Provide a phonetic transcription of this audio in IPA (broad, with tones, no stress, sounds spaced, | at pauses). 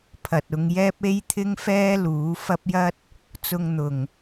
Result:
pʰ ɐ˨ t̚ ʊ˧ ŋ j ɛː˥ p̚ e˥ j t̪ʰ ɪ˥ ŋ f ɛː˥ l uː˨˥ f ɐ˥ p̚ j ɐ˥ t̚ | t͡s ʊ˧ ŋ n̪ ʊ˨˩ ŋ